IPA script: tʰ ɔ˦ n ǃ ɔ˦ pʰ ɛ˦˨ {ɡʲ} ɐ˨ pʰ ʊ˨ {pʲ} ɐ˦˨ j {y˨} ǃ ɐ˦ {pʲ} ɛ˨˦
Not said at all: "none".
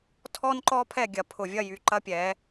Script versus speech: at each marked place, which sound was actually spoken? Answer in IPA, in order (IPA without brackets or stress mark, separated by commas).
ɡʲ, vʲ, y˨, pʲ